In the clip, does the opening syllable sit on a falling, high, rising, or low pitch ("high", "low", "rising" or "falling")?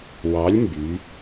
rising